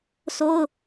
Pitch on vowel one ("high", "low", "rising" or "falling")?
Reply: high